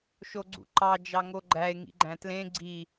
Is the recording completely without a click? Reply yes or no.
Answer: no